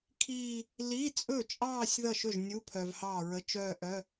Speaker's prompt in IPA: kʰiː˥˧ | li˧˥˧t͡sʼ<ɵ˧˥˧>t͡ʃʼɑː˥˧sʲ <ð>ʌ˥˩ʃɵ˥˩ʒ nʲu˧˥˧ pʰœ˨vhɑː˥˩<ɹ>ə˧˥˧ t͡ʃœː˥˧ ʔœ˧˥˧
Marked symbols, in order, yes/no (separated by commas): no, yes, yes